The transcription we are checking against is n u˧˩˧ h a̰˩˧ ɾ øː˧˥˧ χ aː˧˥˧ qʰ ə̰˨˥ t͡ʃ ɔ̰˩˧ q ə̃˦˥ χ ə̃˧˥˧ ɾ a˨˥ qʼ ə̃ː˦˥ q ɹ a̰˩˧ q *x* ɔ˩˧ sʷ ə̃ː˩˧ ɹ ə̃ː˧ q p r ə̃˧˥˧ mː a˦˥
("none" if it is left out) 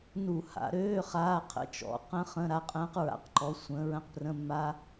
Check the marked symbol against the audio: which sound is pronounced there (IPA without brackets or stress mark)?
ǃ